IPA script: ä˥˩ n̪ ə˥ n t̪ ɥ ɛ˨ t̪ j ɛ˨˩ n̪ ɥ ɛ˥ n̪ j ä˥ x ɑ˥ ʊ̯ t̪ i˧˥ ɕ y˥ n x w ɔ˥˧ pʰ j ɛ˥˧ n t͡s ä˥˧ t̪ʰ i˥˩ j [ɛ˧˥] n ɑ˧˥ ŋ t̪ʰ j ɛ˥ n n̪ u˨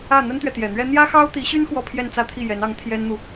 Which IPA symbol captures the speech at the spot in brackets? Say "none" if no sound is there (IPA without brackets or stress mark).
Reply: ɛ˧˥